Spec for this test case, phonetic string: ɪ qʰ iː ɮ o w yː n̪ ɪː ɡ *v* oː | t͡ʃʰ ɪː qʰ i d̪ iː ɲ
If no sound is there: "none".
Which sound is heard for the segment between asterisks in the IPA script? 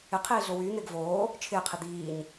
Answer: v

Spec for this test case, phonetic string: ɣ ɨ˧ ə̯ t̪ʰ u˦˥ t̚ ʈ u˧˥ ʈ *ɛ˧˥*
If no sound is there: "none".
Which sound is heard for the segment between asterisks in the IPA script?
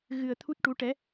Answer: ɛ˧˥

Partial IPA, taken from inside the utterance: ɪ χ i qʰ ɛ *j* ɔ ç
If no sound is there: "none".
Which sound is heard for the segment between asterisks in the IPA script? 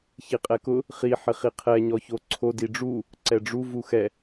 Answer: ɲ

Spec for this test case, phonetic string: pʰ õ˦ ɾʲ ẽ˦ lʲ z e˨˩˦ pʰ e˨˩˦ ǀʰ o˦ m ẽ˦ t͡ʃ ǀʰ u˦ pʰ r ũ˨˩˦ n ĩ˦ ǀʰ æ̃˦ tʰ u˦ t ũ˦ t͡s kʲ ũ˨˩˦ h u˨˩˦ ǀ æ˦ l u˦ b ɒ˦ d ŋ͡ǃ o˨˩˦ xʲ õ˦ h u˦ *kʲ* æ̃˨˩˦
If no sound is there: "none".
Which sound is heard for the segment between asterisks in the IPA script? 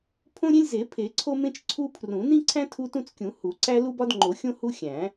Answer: xʲ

